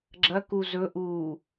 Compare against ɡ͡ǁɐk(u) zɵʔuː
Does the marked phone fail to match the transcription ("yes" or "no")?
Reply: no